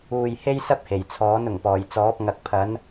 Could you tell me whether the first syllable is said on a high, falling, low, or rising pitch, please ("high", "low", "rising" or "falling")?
low